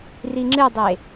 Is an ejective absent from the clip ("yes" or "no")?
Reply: yes